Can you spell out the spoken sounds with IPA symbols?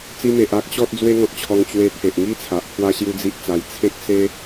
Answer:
t͡s i˧ m e˨ ʔ a˦ k̚ ɕ ɔ˦ t̚ d͡z w e˦ ŋ ɔ̃˨ t̚ t͡ɕʰ ɔ˧ ŋ t͡ɕ w e˧ t̪ʰ e˨ ʔ ŋ i˦ t͡sʰ a˨ ʔ pʰ w a˦ ɕ j u˦ d͡z i˦ ʔ t͡s a˧ j t͡sʰ ẽ˦ k̚ s e˦

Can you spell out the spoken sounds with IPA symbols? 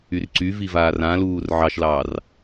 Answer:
y r ǀ y v i v aː r ã l uː r ʕ ɑ ʃ l ɑː r

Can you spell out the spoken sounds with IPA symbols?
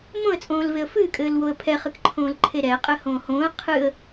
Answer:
m õ ə̯ t͡sʼ õː l v e ə̯ f ɨː kʼ ɘː l w o ə̯ pʰ ɛ χ ɨ k ǃʰ õː l ǃʰ e ɾ ɛː qʼ ɘː h õː h õː ə̯ qʰ ɨ ə̯

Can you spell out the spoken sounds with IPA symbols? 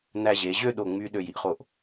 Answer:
n̪ æ˧ ʑ e˩˧ ʑ ø˥˧ ɗ o˧˩ ŋ͡m y˧ ɗ ø˧˩ j i˥ ʔ χ o˧˩ ʔ

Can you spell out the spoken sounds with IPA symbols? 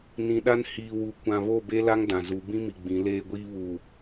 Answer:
n ĩ˨ ɗ a˦ n h iː˨ w u˨ kʷ ã˨ β o˦˨ b e˦ l a˦ ŋ d ã˨ z u˨˦ b ĩ˦ m i˨ ɡ͡b ĩ˨˦ l eː˦ ɡʷ iː˦ β uː˨

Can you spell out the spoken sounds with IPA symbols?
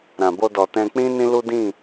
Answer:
ɾ ã˨ b o˧ d ɔ˨ t ɛ̃˧ k͡p ĩ˦ n ĩ˦ l u˦ d ĩ˦˨

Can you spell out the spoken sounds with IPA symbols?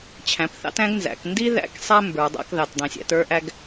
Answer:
t͡ɕʰ æ̃˩˧ p θ ɑ̰˦ t æ̃˦ ɡ n z æ̰˩˧ k n d i˦ ð æ̰˦ k sˤ ɛ˦ m b ə˞˩˧ dˤ æ̰˦ k ð ɑ˩˧ t dˤ ĩ˩˧ sʲ æ̰˦ t ə˞˦ ʔ æ˦ ɡ

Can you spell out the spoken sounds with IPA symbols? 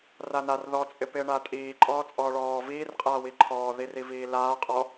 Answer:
r a n a r ð ɔ t͡sʼ ɪ p ɪː ɳ a tʼ iː ǃʼ ɔː t͡sʼ ɔː ɭ ɔː v iː r qʼ aː w i ǃʰ ɔː ð i r i v iː l aː qʼ ɔ

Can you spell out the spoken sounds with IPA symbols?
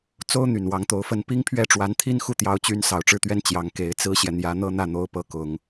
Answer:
t͡s o˥ ʊ̯ n̪ y˨˩ n w ɑ˧˥ ŋ t̪ o˧˥ ʊ̯ f ə˥ n p i˥ ŋ pʰ ɥ ɛ˥˩ ʈ͡ʂ w a˧˥ n t̪ʰ i˥ n x u˥˩ t̪ j ɑ˧˥ ʊ̯ t͡ɕ y˧˥ n s ɑ˨˩ ʊ̯ ʈ͡ʂ ɻ̩˥˩ t̪ ɥ ɛ˥ n t͡ɕ j ɑ˧˥ ŋ k e˧˥ ɪ̯ t͡s ɹ̩˥ ɕ j ɛ˨ n̪ j ä˧˥ n̪ ɤ˥ n̪ ä˥˩ n̪ o˧˥ ʊ̯ p ɤ˧˥ k ʊ˨˩˦ ŋ

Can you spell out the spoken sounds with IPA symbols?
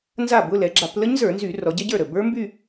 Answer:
n z a˥˩ b ʊ˧˥˧ l ɛ˩˧ ɡ͡ǁ a˧˩˧ p l ə˦˥ ɲ z ə˞˧˩˧ n z y˧˩˧ r ɔ˩˧ ɟ ɛ˦˥ ɟ ə˞˥˩ ɾ ə˥˩ b ə˞˦˥ m b y˥˧

